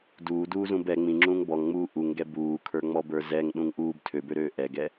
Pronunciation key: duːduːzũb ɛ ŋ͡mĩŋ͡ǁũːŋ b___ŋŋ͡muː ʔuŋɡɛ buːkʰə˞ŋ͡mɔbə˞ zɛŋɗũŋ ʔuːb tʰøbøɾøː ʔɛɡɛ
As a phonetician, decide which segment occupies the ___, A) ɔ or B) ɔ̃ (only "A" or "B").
A